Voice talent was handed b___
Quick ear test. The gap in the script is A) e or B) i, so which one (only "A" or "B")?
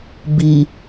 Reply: B